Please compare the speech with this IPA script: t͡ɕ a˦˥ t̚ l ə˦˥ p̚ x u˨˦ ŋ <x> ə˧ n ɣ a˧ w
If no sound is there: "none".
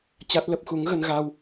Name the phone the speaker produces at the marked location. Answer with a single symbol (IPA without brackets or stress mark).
ɣ